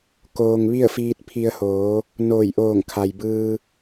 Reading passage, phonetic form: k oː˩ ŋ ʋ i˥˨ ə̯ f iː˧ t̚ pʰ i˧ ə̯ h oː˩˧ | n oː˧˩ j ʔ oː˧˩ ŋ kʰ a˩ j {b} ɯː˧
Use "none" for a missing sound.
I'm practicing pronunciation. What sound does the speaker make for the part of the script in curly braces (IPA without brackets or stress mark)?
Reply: b